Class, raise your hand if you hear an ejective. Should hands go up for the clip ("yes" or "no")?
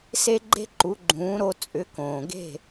yes